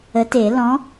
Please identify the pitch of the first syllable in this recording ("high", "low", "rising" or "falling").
rising